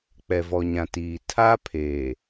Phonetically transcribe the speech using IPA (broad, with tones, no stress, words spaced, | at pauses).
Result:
k͡pɛ˨vɔ˨ɲã˨tiː˨ tʰa˦ pʰeː˨